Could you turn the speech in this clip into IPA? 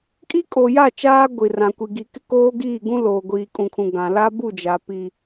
kʼi˦kʼo˨ja˦˨ t͡ʃaː˦ ɡʷi˨rã˨kʷi˨ ɡi˨ kɪ˦koː˦ɡiː˦˨ɡũ˦ loː˨ɡʷiː˨kʼũ˨kʰũ˨ ɡã˨ la˦bu˦˨ d͡ʒa˨pi˨

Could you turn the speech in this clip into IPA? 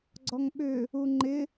ɡ͡ǀɔŋɓʏ | uŋ͡ǃɪ

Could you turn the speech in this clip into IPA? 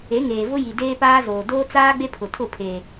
e˨˦ŋeː˨vʊ˦ji˨ deː˦paː˦zoː˨ doː˦t͡saː˦ ɡ͡be˦ pʰʊ˨tʰʊ˦˨pʰeː˨

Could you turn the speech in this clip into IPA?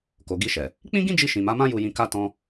ko˨ɡi˧ʃɛ˨ | k͡pĩ˦ɡĩ˦d͡ʒi˧ ʃĩ˨ma˨˦mã˦ ju˧jĩ˧ka˦tɔ̃˦

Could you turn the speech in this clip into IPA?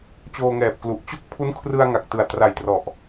t͡ɕoː˧ŋɛː˨˩p̚klu˨˩ʔ t͡ɕo˥˩k̚pʰu˦˥n kʰrɯ˧a̯ŋa˨˩k̚tɯ˨˩a̯ tra˨˩jtrɔ˨˩ʔ

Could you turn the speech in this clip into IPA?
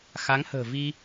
xa˨˦ŋhə̤ː˨˩vi˧

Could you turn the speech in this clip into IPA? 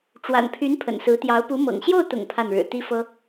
ʈ͡ʂwa̰˨˩npʰy˧˥n pʰə̰˨˩nsɹ̩˧˥t̪jɑ˧˥ʊ̯ pu˧˥mɤ̰˨˩ŋ ɕjo˥˩ʊ̯t̪ʊ̰˨˩ŋ pʰa˥˩nɻɻ̩˨˩ t̪i˥fɤ˥

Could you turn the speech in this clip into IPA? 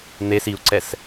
n̪es iu̯ǀɛs

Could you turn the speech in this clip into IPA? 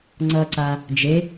ŋ͡ǀʌǀa | d͡ʒe

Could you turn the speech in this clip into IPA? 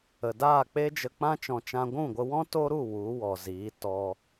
ə˨daː˦˨k͡pe˦ d͡ʒə˧k͡pã˦ t͡ʃɔ̃˧t͡ʃã˦ ɡʷũ˦˨ɡʷə˧wɔ̃˦ to˦ɾu˦˨ wu˨˦wɔ˨ziː˨˦ tɔ˧

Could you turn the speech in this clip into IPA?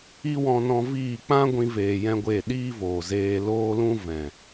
i˦wɔ̃˧nɔ̃˧viː˦˨ k͡pã˦ ɡʷĩ˦veː˧jɛ̃˦ɡʷe˦˨ ɗiː˦voː˨zeː˧ loː˦lũ˦vɛ̃˨

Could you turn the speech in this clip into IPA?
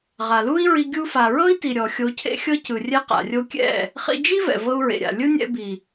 ʁa˨lu˦i̯ɹi˧ ɡʲu˧fa˨ ɹɤ˦i̯ti˨ ɾʲɔ˨ xʲo˧cʰḛ˦xʲɤ˦cɯ˨ rʲɛ˦qa̰˨rʲo˦ kʲɛ̰˦˨ | χḭ˧d͡ʒi˦ vɛ̰˨vɤ˧u̯ɹḛ˨ɾʲa̰˨ lʲɯ˦nʲɛ̰˧ bi˨

